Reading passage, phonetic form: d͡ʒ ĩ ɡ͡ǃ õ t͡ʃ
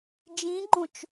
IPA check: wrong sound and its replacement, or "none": none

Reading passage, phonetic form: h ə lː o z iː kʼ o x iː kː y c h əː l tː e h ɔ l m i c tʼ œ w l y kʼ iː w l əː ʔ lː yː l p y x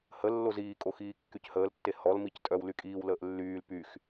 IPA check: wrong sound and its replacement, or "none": none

